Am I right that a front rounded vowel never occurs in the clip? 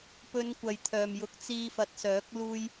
no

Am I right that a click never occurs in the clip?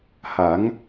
yes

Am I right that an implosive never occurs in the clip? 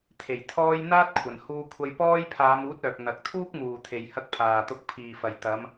yes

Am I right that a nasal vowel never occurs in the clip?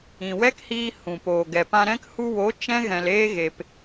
no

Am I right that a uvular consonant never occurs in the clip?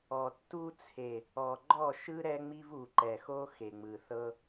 yes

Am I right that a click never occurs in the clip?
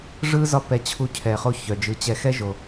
yes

